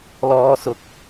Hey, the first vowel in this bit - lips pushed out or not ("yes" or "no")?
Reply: yes